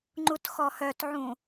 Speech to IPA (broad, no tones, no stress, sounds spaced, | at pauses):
ŋ͡ǃ u t x ɔ h œ t ʕ ũ